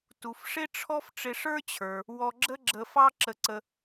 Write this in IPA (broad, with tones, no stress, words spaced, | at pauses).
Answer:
tu˩fʂɪ˥ʈ͡ʂʰɔ˥f ʈ͡ʂɪ˧ʂə˞˥t͡ɕʰə˞˩ | wɔ˧ɡ͡ǁə˥ɡ͡ǁə˧fɑ˥ ǁə˧ǀə˧